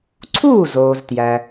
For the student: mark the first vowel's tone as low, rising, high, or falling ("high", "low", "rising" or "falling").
falling